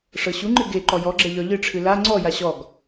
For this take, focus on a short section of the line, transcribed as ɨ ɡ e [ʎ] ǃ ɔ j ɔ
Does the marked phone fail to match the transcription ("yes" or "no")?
yes